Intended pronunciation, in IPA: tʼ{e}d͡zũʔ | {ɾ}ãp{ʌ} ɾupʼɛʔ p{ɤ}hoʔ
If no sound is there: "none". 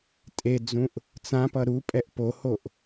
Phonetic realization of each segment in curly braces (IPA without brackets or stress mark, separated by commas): e, t͡s, ʌ, o